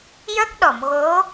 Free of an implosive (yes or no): no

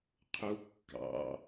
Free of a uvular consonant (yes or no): no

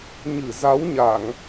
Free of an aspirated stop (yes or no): yes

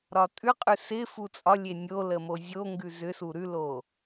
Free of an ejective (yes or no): no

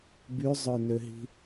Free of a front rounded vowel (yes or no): no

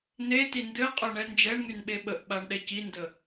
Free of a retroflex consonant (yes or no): no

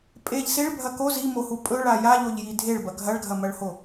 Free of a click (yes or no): yes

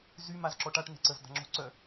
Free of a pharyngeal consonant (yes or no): yes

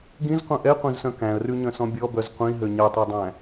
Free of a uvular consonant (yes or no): no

